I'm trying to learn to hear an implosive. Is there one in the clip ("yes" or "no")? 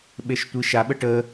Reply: yes